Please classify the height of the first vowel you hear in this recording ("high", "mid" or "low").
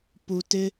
high